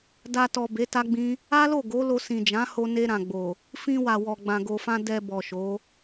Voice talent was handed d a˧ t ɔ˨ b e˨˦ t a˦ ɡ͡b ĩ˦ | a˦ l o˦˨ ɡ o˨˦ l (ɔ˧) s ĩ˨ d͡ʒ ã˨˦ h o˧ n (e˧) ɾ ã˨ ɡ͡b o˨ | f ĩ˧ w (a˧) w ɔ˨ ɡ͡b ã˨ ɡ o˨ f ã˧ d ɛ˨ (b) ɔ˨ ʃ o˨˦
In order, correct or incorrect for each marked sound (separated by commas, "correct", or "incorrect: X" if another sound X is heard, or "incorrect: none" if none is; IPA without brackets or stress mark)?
incorrect: o˧, correct, incorrect: a˨, correct